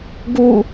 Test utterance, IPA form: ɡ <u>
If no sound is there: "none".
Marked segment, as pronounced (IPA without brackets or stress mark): u